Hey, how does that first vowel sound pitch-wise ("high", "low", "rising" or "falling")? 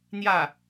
falling